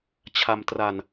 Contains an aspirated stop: yes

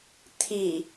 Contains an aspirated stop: yes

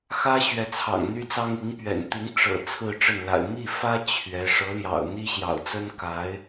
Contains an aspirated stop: yes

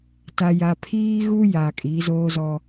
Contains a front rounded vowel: no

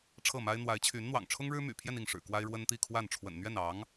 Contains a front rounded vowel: yes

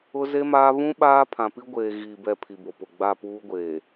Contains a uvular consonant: no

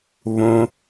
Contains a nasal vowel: yes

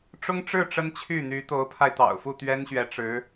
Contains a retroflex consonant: yes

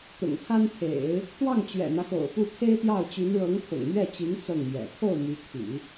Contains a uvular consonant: no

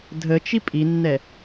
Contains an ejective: yes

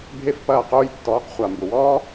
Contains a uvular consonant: yes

